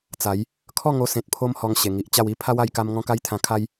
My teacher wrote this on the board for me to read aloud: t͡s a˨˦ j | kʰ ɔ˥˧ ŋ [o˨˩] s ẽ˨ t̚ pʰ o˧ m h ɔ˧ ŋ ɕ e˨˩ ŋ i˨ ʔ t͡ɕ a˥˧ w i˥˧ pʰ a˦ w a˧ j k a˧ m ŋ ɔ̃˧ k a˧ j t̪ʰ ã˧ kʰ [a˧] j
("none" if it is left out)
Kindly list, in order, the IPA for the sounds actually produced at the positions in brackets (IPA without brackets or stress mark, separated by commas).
o˧, a˦